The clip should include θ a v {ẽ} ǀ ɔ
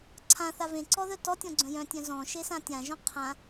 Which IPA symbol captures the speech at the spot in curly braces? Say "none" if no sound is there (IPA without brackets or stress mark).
ẽ